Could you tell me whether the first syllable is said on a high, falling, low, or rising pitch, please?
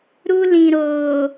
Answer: high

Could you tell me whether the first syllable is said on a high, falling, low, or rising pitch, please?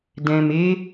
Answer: low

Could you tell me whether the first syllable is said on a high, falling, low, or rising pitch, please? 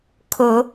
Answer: rising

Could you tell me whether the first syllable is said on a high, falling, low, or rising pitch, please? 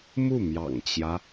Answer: falling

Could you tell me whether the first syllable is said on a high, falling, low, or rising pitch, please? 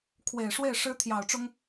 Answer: low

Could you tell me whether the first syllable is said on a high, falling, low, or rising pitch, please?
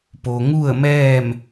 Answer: low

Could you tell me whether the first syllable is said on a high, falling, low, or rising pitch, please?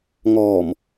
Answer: low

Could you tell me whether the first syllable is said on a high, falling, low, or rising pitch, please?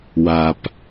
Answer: low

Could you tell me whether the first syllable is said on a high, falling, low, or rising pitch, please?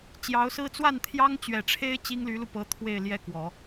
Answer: rising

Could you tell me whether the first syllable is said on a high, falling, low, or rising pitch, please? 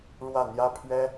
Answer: falling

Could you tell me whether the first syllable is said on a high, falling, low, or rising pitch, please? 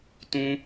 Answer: high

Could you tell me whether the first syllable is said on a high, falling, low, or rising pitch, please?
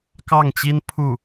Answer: falling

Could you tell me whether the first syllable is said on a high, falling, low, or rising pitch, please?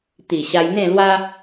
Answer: low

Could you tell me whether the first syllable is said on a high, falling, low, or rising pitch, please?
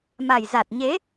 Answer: low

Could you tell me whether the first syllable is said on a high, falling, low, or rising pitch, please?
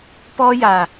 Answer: high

